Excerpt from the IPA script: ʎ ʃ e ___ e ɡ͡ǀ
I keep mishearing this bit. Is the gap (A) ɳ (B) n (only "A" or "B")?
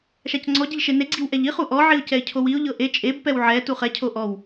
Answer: B